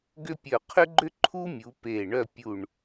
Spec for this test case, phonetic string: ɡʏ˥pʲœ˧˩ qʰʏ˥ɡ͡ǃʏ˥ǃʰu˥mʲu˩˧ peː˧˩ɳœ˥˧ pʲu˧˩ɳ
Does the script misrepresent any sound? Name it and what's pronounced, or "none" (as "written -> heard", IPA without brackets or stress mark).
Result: none